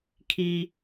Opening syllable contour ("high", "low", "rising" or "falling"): high